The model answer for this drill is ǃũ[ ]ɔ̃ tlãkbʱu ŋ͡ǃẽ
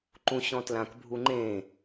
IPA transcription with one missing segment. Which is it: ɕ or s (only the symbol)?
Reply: ɕ